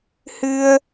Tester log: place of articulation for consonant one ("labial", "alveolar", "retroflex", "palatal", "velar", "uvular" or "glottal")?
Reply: glottal